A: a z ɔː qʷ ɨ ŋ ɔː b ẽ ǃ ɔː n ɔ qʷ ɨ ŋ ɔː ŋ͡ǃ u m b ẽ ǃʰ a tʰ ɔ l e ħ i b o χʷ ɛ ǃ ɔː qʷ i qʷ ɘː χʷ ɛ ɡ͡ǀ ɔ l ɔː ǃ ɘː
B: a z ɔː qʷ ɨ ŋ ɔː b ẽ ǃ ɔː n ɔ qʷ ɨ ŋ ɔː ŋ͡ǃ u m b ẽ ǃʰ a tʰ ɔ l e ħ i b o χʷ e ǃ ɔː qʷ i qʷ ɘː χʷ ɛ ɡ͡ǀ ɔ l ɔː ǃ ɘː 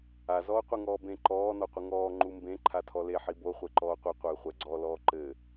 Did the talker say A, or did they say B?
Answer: B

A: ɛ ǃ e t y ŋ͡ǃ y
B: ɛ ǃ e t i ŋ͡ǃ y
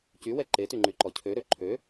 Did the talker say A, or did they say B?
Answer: A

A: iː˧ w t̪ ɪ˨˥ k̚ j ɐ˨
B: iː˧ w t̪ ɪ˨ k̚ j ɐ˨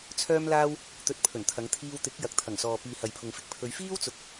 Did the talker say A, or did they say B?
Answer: A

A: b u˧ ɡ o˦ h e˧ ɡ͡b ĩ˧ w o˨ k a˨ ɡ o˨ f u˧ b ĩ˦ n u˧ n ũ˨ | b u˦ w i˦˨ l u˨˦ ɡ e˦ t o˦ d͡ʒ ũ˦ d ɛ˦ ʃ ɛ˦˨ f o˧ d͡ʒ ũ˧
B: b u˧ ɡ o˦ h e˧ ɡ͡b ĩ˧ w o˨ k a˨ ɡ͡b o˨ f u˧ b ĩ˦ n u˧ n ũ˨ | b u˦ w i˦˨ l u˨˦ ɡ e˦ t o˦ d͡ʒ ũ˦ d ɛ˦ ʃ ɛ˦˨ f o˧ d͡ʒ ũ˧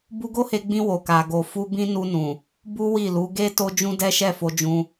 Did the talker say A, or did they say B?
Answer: A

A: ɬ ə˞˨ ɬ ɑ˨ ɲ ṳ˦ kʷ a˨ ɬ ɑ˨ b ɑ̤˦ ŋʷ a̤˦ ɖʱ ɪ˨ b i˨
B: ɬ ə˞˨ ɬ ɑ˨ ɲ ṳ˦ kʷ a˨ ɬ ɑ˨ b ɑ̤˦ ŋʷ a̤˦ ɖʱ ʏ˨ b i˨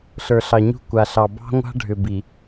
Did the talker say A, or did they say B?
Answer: B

